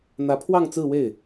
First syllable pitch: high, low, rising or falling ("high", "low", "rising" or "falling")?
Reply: rising